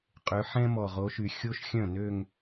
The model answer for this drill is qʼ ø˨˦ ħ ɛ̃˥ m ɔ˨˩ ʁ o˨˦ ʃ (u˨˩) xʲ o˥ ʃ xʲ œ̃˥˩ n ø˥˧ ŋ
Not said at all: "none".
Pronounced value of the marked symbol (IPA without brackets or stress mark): y˨˩